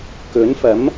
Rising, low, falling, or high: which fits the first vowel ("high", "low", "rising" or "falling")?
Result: rising